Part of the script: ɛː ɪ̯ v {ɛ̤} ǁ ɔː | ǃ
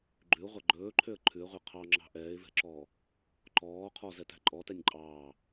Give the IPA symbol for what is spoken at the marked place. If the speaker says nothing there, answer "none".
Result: ɛ̤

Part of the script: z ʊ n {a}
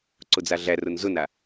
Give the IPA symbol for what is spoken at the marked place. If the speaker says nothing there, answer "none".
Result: a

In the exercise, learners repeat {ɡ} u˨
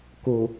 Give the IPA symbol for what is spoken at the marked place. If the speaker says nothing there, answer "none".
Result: k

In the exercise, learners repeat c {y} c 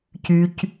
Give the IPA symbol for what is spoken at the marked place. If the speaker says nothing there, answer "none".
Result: y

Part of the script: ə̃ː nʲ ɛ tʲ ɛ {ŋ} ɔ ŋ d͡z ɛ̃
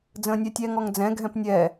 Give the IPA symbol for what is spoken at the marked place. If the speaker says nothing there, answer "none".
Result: ŋ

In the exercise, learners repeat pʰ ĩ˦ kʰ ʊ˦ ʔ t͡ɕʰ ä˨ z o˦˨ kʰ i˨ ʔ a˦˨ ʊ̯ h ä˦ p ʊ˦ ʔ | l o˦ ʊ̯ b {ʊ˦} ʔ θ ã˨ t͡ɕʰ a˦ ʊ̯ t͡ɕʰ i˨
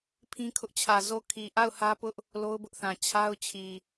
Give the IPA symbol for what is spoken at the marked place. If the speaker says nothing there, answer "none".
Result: ʊ˦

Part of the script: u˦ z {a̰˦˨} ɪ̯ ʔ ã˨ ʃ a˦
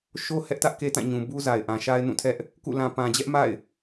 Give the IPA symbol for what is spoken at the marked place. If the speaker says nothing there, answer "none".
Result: a˨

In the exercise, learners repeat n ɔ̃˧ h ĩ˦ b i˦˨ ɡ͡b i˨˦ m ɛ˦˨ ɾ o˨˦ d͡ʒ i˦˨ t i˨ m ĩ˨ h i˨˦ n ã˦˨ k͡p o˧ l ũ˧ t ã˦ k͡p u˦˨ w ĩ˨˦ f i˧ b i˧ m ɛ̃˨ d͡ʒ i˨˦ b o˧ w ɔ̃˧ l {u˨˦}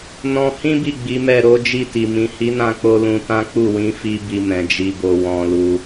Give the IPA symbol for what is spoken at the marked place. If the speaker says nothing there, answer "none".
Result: u˧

